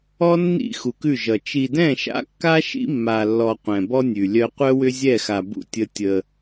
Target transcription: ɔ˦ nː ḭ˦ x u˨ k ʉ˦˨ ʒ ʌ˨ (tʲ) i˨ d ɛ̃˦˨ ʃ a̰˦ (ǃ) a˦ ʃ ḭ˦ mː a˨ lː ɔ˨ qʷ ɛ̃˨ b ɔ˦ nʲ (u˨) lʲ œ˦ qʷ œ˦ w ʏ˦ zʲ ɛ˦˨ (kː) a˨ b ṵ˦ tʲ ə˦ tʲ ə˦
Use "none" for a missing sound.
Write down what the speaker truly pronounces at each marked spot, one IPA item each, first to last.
t͡ʃ, kː, ʉ˨, x

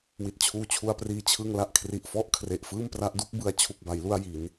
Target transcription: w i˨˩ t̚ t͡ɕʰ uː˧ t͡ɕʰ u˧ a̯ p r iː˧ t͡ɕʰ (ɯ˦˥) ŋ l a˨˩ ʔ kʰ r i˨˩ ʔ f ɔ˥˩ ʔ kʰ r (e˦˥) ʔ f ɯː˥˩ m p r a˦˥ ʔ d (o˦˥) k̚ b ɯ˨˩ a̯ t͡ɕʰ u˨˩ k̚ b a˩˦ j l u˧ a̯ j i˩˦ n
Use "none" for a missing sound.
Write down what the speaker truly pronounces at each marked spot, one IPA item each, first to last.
ɯ˧, e˨˩, u˦˥

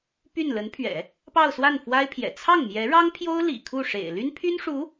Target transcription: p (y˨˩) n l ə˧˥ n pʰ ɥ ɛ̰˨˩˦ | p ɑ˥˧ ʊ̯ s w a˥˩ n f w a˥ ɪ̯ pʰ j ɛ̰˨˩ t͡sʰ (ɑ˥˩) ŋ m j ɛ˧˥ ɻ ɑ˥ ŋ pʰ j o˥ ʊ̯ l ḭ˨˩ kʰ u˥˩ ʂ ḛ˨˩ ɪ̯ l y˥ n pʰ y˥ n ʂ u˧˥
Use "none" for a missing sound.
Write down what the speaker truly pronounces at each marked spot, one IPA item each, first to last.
y˥˩, ɑ˥˩

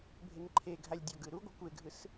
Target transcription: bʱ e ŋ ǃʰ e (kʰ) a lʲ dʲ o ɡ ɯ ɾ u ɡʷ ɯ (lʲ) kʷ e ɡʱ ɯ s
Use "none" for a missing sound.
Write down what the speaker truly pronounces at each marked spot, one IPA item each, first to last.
ɡʱ, none

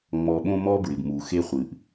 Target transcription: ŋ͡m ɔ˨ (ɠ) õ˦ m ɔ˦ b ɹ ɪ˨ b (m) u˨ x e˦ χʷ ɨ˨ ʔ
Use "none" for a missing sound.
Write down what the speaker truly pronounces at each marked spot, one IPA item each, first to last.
ɓ, m

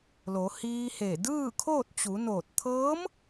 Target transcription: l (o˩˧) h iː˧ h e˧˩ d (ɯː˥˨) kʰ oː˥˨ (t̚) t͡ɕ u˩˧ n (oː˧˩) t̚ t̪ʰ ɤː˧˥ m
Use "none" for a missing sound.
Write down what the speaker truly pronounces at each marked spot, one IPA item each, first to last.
o˩˧, ɯː˥˨, t̚, oː˧˩

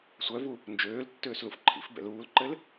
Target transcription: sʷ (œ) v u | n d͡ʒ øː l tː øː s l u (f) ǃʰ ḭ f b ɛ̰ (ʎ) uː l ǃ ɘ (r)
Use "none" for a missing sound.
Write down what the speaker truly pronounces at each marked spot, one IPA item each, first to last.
œ, f, l, l

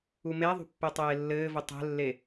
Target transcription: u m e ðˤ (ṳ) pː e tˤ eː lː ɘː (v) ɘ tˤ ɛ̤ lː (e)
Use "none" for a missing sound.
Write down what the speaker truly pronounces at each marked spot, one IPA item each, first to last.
ṳ, v, e

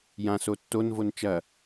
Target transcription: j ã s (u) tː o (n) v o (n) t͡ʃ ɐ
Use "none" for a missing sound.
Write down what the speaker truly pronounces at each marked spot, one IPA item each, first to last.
o, n, n

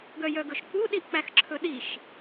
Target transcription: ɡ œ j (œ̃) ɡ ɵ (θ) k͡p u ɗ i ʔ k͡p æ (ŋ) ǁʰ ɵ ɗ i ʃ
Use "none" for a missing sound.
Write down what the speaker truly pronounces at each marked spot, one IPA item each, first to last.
œ, ʃ, x

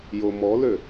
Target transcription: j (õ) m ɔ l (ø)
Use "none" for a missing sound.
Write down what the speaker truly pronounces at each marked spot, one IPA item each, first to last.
o, ø

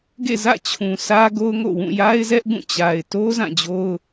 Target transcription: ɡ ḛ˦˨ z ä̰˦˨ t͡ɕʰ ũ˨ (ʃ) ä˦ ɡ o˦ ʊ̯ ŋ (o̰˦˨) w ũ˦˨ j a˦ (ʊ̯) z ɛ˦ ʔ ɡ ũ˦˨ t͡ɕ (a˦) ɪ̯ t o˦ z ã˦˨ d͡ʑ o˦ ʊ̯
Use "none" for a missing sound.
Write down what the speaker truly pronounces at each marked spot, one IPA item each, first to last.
s, o̰˦˨, ɪ̯, a˨

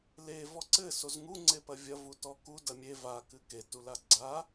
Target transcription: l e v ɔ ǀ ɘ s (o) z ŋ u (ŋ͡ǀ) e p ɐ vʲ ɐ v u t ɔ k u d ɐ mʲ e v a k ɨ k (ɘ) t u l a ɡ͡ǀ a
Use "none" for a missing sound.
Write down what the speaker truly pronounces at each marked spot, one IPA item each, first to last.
o, ŋ͡ǀ, e

